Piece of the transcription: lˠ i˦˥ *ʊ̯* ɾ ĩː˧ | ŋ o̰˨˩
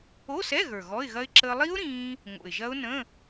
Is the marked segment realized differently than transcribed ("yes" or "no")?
no